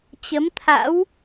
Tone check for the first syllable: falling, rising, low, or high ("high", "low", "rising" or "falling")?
rising